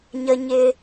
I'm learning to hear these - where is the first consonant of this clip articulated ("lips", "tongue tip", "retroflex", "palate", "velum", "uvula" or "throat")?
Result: palate